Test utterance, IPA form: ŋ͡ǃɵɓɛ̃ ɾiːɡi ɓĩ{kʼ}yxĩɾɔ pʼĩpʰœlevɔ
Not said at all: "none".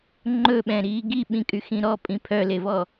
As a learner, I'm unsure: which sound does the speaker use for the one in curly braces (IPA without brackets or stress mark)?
kʼ